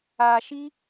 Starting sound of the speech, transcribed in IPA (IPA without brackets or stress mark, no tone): a